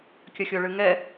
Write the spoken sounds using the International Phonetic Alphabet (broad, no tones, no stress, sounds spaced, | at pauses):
kʲ ɐ xʲ o ɭ ɨ ŋ ɛ